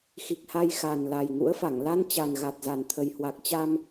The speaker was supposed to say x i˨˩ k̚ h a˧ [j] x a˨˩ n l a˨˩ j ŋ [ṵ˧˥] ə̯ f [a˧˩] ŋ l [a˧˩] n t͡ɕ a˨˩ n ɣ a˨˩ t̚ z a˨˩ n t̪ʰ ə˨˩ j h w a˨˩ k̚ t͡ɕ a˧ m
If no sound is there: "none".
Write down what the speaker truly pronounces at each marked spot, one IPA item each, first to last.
j, ṵ˧˥, a˧˩, a˧

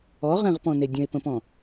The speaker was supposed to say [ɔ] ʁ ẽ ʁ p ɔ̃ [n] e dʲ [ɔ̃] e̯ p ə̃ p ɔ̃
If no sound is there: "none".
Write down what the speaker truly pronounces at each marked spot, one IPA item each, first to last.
ɔ, n, ə̃

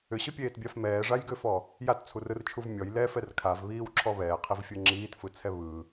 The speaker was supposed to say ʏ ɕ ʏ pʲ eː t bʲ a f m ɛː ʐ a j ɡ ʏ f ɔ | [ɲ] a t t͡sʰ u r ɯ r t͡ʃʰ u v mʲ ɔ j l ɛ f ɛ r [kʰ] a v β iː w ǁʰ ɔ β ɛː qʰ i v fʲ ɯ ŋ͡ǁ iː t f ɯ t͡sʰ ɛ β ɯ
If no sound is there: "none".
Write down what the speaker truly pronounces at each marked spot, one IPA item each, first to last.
j, kʰ

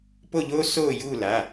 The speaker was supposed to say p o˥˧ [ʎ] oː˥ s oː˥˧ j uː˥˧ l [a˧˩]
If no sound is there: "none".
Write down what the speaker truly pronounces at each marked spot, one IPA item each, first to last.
ʎ, a˩˧˩

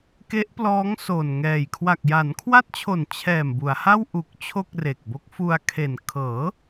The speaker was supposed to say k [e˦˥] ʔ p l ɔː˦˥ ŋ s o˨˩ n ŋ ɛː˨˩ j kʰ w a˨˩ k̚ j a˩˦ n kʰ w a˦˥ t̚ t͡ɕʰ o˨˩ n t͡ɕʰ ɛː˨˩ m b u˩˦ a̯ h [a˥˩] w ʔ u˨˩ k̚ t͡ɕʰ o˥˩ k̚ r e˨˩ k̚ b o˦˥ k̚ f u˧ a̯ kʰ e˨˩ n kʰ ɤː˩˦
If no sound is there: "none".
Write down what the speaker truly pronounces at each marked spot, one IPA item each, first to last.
e˦˥, a˥˩

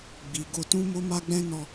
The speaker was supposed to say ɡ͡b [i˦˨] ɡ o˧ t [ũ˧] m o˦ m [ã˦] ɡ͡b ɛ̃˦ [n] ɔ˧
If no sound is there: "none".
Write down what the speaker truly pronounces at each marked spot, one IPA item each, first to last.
i˨, ũ˦, a˦, n

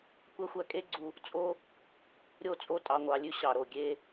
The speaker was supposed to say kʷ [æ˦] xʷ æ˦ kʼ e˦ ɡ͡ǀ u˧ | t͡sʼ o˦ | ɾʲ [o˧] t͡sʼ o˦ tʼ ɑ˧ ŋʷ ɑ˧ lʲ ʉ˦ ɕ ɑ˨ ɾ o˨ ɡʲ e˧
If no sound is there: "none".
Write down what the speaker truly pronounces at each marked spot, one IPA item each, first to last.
æ˦, o˦˨

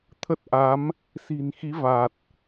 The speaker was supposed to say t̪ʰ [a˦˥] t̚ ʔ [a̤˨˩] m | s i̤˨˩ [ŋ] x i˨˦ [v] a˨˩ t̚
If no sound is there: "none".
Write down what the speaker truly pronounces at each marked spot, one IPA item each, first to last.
ə˦˥, a˨˦, n, v

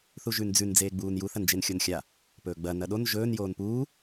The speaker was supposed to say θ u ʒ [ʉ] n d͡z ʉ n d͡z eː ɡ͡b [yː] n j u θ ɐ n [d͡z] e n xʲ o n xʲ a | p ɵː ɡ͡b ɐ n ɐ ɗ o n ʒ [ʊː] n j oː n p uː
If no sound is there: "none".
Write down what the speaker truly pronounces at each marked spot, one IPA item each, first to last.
ʉ, uː, d͡ʒ, ɵː

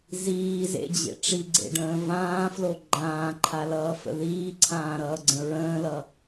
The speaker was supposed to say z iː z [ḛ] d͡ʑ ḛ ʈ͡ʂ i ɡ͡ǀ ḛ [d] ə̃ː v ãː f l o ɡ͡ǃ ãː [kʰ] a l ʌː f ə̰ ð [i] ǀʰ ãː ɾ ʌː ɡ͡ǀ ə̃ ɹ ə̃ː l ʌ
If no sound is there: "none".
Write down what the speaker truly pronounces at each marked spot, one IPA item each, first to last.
ḛ, ɖ, ǃʰ, iː

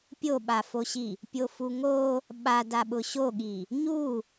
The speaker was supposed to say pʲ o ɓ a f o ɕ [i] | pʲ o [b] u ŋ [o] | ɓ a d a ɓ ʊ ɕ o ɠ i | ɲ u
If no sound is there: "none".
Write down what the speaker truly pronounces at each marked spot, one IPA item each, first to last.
i, f, o

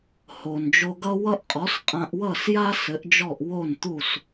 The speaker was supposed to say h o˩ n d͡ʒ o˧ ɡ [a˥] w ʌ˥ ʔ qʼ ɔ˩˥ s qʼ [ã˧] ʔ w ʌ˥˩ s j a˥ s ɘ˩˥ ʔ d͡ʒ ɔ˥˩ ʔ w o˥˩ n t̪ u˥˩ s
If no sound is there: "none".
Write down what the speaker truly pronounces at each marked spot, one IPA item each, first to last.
ʌ˥, ã˧

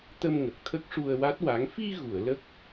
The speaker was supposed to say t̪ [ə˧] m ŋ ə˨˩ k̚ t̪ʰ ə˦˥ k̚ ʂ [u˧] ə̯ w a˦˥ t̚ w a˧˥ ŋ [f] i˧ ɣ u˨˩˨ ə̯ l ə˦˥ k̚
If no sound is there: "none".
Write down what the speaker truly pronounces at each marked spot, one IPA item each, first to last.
ə˧, u˧, f

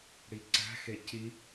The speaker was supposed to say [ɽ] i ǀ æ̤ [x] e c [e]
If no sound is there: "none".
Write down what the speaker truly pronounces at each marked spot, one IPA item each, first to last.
ɽ, x, i

